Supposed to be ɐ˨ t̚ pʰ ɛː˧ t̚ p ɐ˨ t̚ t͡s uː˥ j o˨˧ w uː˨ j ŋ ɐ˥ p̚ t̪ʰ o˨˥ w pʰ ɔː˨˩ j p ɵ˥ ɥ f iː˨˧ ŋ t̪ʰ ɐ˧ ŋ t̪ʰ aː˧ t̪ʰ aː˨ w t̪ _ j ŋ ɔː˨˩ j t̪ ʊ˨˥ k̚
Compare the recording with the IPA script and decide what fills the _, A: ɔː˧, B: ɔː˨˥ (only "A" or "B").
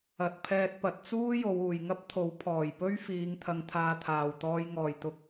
A